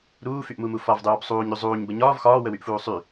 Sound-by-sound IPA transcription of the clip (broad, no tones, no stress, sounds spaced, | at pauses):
ɾ uː f y ʔ m u m u f ɒ v dˤ uː b sˤ uː ɲ ɾ y zˤ uː ɲ b ə ɲ ɒː v x ɒː w ə w y ʔ f uː sˤ y